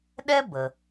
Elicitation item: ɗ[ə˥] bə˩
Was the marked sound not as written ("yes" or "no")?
yes